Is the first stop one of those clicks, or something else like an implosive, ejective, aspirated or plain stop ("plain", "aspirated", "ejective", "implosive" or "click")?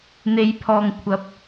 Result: aspirated